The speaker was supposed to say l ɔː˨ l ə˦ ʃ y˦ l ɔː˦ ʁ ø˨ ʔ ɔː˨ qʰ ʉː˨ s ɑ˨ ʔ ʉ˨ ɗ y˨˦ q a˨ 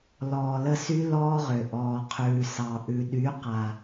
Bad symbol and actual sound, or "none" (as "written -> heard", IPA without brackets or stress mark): ʃ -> s